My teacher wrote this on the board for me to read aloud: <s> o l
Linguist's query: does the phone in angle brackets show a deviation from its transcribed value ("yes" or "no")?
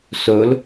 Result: no